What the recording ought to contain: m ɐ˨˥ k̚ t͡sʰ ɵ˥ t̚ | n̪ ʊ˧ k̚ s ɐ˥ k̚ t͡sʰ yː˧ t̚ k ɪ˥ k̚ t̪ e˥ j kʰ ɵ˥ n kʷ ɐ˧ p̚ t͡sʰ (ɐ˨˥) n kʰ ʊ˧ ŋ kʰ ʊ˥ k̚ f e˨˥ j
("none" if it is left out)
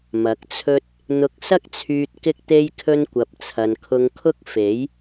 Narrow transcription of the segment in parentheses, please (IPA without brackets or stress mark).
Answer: ɐ˨